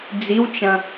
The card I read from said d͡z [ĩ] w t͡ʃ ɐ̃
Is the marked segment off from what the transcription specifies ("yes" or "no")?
yes